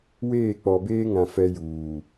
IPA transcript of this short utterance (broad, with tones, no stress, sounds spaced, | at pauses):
w eː˦˨ k͡p ɔ˨ b eː˦ ŋ ã˨ f ɛ˦ j uː˨